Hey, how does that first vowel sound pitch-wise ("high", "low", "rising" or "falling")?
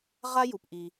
high